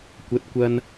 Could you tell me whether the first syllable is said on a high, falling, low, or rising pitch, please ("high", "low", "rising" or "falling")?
rising